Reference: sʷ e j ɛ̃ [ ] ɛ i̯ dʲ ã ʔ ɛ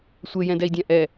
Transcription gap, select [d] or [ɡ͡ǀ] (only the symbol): d